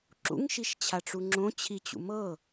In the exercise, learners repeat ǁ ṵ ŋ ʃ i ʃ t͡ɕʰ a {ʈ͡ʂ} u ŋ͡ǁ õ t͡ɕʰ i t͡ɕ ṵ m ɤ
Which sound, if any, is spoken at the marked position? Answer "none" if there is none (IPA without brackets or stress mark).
ʈ͡ʂ